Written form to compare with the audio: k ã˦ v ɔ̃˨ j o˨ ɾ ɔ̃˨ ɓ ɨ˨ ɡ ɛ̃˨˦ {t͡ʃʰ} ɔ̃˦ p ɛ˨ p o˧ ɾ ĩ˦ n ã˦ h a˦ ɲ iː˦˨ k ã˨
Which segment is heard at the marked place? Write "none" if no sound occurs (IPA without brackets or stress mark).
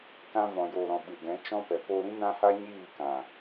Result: t͡ʃ